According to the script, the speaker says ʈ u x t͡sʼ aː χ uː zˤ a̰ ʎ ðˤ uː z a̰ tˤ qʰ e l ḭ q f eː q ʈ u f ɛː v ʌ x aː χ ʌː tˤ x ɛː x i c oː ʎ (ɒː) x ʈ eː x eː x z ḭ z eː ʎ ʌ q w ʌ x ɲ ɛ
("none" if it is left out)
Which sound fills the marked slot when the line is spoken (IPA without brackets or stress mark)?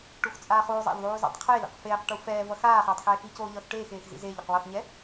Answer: ʌː